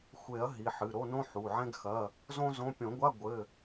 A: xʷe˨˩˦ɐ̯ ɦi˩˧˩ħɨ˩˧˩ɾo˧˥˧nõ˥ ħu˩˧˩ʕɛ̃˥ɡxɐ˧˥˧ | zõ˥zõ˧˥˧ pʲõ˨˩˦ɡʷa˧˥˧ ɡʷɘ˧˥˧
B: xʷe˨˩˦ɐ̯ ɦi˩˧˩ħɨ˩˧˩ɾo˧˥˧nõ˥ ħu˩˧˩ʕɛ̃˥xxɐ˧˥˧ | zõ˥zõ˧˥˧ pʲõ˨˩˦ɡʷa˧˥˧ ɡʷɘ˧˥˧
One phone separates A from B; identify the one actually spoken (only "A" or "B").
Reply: A